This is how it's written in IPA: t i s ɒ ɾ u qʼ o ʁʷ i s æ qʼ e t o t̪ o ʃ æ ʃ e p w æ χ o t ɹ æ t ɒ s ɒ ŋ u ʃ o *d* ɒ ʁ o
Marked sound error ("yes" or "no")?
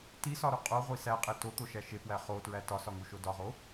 no